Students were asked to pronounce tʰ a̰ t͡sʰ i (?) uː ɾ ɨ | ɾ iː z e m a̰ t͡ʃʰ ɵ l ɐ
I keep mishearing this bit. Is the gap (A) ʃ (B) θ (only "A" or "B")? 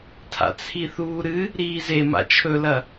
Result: B